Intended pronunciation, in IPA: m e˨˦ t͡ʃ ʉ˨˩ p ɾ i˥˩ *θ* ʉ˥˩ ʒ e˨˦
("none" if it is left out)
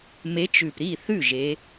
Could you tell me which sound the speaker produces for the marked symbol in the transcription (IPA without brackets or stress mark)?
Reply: θ